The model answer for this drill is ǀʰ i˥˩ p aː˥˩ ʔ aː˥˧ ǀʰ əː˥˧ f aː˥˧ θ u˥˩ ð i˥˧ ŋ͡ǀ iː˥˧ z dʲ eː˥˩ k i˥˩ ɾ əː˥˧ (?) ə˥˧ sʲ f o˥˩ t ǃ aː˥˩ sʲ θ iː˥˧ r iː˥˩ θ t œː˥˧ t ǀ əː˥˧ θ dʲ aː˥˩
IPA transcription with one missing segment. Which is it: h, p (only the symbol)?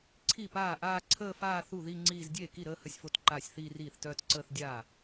h